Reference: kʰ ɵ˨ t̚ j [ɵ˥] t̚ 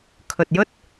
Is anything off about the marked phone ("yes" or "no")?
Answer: no